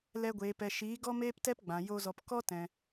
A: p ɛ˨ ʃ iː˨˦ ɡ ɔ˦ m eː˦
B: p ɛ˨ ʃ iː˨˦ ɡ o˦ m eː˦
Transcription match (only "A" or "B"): A